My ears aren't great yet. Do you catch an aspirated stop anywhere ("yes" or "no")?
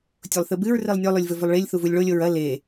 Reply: no